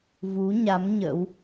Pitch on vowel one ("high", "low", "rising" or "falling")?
rising